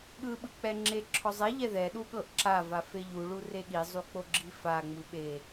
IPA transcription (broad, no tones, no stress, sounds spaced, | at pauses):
ɠ ɯ ɓ ɯ k͡p ɛ ŋ͡ǁ e ǁʰ ɔ zˤ e ʎ ɛ ð ɛ ɗ u ɠ ɤ ʔ ǁ a v a f e ʎ u ɭ u r e ɠ i zˤ u k͡p o ɡ͡ǁ i f a ŋ͡m ɯ ɓ e